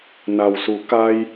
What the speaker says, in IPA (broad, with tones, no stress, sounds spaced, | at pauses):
n a˩ w s u˩˧ k a˧ j